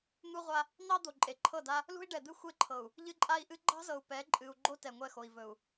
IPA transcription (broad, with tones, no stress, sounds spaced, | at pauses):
n̪ u˦ ʁʷ a˦ | n̪ ɑ˦ d̪ o˨ ǃʼ e˨ ǃʰ ɤ˦˨ d a˦ | l ṳ˦ i̯ ɖ ɛ˨ d̪ ɨ˦ xʷ e˦ ǃʰ ɤ˨ u̯ | ʎ ɨ˦ ǃʼ a˦ i̯ ʔ ɨ˦ ɡ͡ǃ ɑ̤˦ z ɤ˨ u̯ p ɛ˨˦ ǃʼ ɨ˨ u̯ ɡ͡ǃ o˦ t ɛ˨ ŋʷ ɛ˦˨ x o˨ i̯ v ɵ˨ u̯